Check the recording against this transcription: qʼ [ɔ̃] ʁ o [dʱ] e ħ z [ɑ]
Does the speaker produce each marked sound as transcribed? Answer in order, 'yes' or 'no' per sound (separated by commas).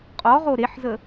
no, no, no